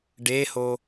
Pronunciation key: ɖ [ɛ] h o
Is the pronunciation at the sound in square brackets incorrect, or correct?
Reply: incorrect